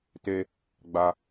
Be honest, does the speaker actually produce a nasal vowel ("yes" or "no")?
no